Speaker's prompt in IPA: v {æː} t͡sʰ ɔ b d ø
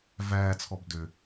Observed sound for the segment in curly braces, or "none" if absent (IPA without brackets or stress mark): æː